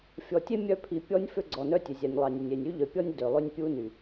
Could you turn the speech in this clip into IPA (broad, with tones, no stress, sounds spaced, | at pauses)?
fʲ ɔ˨ tʲ e˦ mʲ œ˦ pʰ i˨ pʲ ɔ˦ nʲ f ø˦ ɡ͡ǀ ɔ˨ n œ˦ tʲ ø˨ zʲ æ˨ nʲ lˠ ɑ˨ nʲ ø˨ nʲ e˨ nʲ y˦ ʎ œ˨ pʲ ɔ˦ nʲ d ø˨ lˠ ø˦ nʲ pʲ u˦ n y˨